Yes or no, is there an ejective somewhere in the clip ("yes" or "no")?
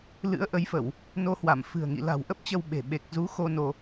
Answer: no